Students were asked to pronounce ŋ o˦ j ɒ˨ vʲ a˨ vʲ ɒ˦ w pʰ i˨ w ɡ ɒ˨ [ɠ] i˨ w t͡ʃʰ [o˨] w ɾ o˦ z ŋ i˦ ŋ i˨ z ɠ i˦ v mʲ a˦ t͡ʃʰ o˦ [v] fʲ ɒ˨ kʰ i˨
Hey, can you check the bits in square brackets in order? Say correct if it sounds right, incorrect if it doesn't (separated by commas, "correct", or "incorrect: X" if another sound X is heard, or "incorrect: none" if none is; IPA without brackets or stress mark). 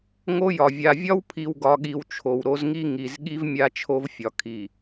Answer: correct, correct, correct